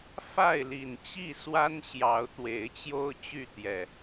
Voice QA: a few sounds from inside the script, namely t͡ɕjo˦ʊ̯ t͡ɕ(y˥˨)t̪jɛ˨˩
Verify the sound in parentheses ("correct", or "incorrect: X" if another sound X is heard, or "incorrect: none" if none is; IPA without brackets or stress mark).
correct